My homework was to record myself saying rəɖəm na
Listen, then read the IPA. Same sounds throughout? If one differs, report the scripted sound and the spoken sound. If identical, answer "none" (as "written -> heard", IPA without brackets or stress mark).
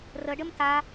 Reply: n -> t